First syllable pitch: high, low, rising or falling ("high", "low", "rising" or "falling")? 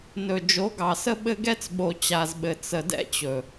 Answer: low